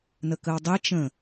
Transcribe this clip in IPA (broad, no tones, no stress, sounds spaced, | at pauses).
n ə k ə w dˤ e t͡ʃ ə̃